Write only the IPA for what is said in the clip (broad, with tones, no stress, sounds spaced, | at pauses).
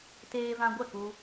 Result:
t eː˧ v ã˧ ɡʷ ɛ˦˨ k u˧